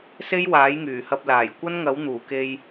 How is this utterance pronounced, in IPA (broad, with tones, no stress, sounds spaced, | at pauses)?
s e˥ j w aː˨˥ j ŋ yː˨˩ h ɐ˧ p̚ l aː˨˩ j kʷ ɐ˥ n ŋ ɐ˨˥ w n̪ uː˨˩ k e˧ j